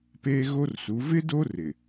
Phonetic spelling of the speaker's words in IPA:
p eː˦ ɣ o˦ r s u˨˦ v ɪ˦ d o˦ r ɪ˨

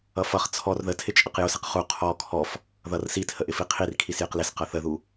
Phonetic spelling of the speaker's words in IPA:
ʌ f ʌ χ t͡sʰ ɔ r ð ə tʰ ɪ t͡ʃʼ ə q j ʊ s ɪ q χ u qʰ ɔ kʰ ɔ f | ð ʌ r s i tʰ ə ʔ ɪ f i qʰ i r kʰ i s j ɪ q l ɪ s q ʌ θ ə ð u

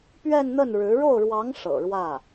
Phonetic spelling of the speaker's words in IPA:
p ɥ ɛ˥˧ n n̪ ə˥˩ n ɻ ɻ̩˧˥ ɻ o˥˩ ʊ̯ ɻ w ɑ˧˥ ŋ ʂ ɤ̰˨˩ ɻ w ä˥˩

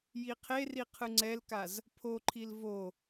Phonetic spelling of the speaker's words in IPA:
j i qʰ e r i qʰ ɯ ŋ͡ǀ ɛ l k a z | pʰ o ǃʰ i l v o

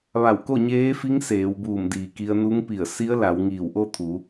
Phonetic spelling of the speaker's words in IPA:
ʋ a˧˩ w k o˥˨ ɲ eː˧˥ f i˧˥ ŋ s eː˩˧ w b uː˧˩ m d iː˩ k i˧ ə̯ n u˧˥ ŋ p i˧˩ ə̯ s i˧˥ ə̯ l a˩˧ w ŋ iː˧˩ w ʔ o˥˨ t̪ʰ u˩˧

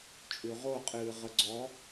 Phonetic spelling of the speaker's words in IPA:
t͡ʃʼ ʉ ʁ o qʼ ɨː ʁ ə ɡ͡ǀ ɔ

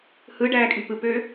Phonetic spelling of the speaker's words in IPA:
h ɯ ɖ æː kʼ y p ɯ p øː

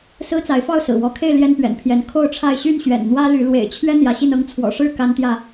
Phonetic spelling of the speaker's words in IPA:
s ɹ̩˦ t͡s a˨˦ ɪ̯ f ɑ˥˨ ʊ̯ s ɹ̩˨˩ w ɔ˨˦ kʰ e˥˨ ɪ̯ l j ɛ˦ n p ɥ ɛ̰˨˩ n pʰ j ɛ˨˦ n kʰ o˥˨ ʊ̯ ʈ͡ʂʰ a˥˨ ɪ̯ ɕ y˥˨ n ɕ ɥ ɛ̰˨˩ n n̪ w ä˦ l y˨˦ l w ḛ˨˩ ɪ̯ t͡ɕʰ ɥ ɛ˦ n̪ j ä˨˦ ɕ i˥˨ n ɤ˦ ŋ t͡sʰ w ɔ̰˨˩ ʂ ɻ̩˥˨ k a˦ n t̪ j ä˥˨

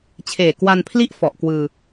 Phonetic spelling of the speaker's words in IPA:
t͡ɕʰ eː˨˩ k w a˧ n pʰ l i˥˩ ʔ f ɔ˨˩ ʔ k w ɯː˧

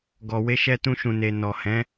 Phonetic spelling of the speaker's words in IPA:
ɡ ɔ˨ w e˨˦ ʃ ɛ˧ t ũ˧ ʃ ũ˨ n e˨ n ɔ˨ h ɛ̃˨˦

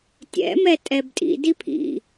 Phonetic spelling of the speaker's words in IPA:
tʲ ɛ̰ m ɛ tʼ ɛ b tʼ ḭ d i pʰ ḭ

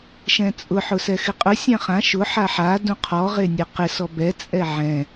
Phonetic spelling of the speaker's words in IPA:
ʃ ɛ̃ t͡sʼ ʊ ħ ʊ s ɛ x ɪ qʼ ʊ sʲ ã χ ã ʃ ʊ ħ a ħ a d ũ qʰ ɔ ʁ e nʲ ɛ q ɪ s ɔ b ɛ t͡sʼ ɛ ʕ ɛ̃

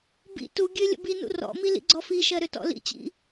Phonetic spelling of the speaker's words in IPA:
b ḭ t u ɡʲ ø lʲ ə̰ b i n ṵ r ɔ̰ m i l ḭ ɡ͡ǀ ɔ f i ʃ ɜ ɾ ø t ɔ̰ l ḭ t͡ɕ ḭ

